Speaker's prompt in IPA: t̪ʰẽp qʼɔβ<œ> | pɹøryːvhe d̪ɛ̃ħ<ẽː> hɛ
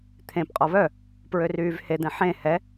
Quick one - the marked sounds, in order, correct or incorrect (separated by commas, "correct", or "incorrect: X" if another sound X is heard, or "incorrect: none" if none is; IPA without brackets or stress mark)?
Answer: correct, incorrect: ẽ